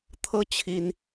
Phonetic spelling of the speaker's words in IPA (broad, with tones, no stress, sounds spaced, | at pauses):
t̪ʰ ɤ˥ t͡ɕʰ i˥ n